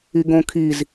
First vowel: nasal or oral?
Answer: oral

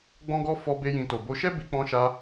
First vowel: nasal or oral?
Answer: nasal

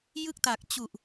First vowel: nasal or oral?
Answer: oral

